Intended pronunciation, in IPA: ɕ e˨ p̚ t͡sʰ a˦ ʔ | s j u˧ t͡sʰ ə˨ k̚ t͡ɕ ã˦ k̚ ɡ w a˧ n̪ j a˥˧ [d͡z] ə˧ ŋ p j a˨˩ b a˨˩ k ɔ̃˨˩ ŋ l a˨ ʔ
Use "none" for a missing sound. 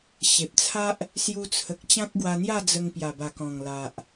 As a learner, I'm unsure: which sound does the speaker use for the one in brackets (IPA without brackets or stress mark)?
d͡z